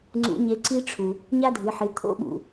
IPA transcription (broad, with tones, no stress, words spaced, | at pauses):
ŋ͡ǀṵ˧˥ɲe˧˥ǀi˥ʈ͡ʂʰu˩ | ɲa˥dʱɨ˩˧ħɨ˩˧ t̪ʰo̰˥ɓṵ˩